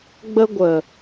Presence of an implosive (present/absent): absent